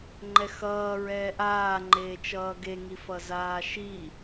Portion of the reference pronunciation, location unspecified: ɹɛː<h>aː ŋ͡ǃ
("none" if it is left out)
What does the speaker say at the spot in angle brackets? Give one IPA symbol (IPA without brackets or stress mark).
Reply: ʔ